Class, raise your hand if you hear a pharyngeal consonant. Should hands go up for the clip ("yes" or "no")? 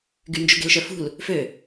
no